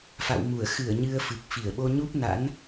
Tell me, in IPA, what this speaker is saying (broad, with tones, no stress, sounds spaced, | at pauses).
f a̰˧˨ w m u˧˩ ə̯ x ɨ˧˩ ə̯ ɲ ɨ˧ ə̯ f ɨ˨˩ k̚ f i˧˩ ə̯ ɓ o˧ ɲ u˦˥ p̚ n a̰˧˥ n